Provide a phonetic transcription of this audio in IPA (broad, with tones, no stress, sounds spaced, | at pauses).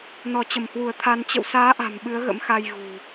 n ɔ˧˩ t͡ɕ ə˧˩ m h w u˧˩ ə̯ t̪ʰ a˧ n t͡ɕ ə̰˧˨ w s aː˨˦ ʔ a̤˨˩ m ɓ ɨ˨˦ ə̯ ɣ ə̰˧˥ m x a˧ j ɣ ṳ˨˩